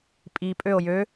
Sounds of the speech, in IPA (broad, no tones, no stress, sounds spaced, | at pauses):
pʼ i pʼ ø o̯ j ø